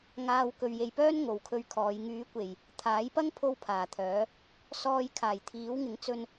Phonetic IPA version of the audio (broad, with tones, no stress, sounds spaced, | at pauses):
ŋ aː˨ w k ɵ˨ ɥ j e˨ j p œː˥ n ŋ o˨˧ w kʰ ɵ˧ ɥ kʰ ɔː˨˧ j ŋ yː˨˧ kʷ e˨˩ j | t̪ʰ aː˨˥ j p ɐ˥ ŋ pʰ o˥ w pʰ aː˨˩ t̪ʰ œː˨˥ | s ɔː˧ j kʰ aː˨˩ j t̪ʰ iː˨˥ w ŋ ɪ˨˥ ŋ t͡s ɵ˧ n